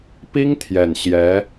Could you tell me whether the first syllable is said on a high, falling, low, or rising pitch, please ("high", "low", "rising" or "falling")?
high